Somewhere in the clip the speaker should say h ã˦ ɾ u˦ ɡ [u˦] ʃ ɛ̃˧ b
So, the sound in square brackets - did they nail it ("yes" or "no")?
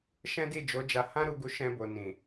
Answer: yes